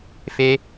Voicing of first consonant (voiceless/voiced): voiceless